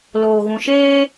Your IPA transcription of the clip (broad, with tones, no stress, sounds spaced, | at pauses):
l oː˨ ɣ ũ˨ ʃ eː˧